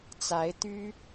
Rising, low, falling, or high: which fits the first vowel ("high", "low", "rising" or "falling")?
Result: rising